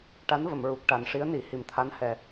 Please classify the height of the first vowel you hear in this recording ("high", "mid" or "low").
low